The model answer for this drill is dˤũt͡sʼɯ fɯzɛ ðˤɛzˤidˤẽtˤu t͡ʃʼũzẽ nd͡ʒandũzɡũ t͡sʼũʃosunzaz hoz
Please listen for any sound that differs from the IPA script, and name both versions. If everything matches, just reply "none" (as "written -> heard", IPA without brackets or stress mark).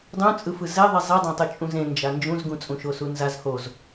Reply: d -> d͡ʒ